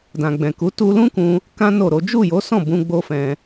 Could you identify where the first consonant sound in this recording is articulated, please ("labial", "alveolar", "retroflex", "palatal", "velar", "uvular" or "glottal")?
alveolar